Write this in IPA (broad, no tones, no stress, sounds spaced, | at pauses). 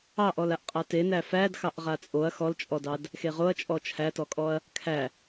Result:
ɑ ʔ ɔ l a ʔ qʼ a t e n æ f æ d x ɑ ʔ ʁ a t͡sʼ o ɐ̯ x ɔ l t͡ʃʼ ɔ d ɑ d | x e ʁ o ɐ̯ t͡ʃʼ ɔ t͡ʃʰ æ t ɔ kʼ ɔ ɐ̯ | kʰ æ